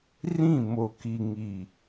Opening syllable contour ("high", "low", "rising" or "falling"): falling